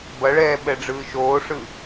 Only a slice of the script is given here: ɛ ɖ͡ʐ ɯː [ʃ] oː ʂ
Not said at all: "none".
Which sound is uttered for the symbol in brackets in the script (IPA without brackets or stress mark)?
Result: ʃ